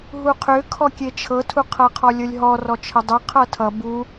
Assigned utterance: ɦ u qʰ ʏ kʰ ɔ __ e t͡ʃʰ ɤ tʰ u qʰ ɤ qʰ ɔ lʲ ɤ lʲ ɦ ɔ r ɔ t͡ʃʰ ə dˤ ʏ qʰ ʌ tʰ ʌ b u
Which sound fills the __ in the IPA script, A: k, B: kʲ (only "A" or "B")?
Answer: B